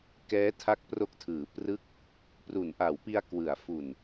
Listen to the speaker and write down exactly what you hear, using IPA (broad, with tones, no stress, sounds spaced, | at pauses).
k ɛː˦˥ tʰ a˦˥ k̚ p r o˦˥ k̚ tʰ ɯː˩˦ p r ɯ˦˥ k̚ | p r u˩˦ n ʔ a˩˦ w p i˧ a̯ k w ɯ˩˦ a̯ f u˨˩ n